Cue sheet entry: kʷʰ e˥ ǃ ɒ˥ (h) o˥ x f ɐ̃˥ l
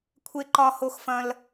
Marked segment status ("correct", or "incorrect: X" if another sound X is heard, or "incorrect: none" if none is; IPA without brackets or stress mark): correct